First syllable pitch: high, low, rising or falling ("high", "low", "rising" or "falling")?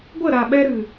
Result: falling